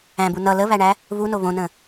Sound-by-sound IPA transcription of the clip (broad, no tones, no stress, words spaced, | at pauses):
æ̃bu nʌ ləβæɳæ | βuno βõnə̃